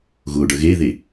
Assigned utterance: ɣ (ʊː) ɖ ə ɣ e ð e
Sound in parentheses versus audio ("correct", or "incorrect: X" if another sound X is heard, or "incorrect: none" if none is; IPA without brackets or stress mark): correct